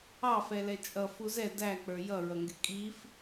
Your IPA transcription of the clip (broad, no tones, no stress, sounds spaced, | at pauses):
ɑ f ɛ l ɛ t͡ʃʼ ʌ f u z ɛ d æ k͡p ə˞ j ʌ ɹ ʌ ŋ ɡ ɪ kʼ i f